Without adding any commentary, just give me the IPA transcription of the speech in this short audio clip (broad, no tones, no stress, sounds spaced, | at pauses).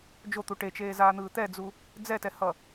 d͡ʒ o t̪ u ʈ e t͡ʃ eː z aː n̪ ɯː t̪ ɛ d͡z u | d͡z ɛ t ɛ h ʌ